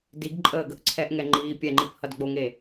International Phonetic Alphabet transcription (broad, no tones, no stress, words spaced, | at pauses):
diɡ ǃʼəːɡəʔǀʰɛʔŋɛ ŋ͡ǃiːpʲɛŋ͡ǃip hʌdɡ͡boŋe